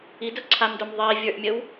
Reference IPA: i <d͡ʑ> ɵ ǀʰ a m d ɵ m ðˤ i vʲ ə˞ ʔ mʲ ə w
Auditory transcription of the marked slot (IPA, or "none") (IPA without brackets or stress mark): d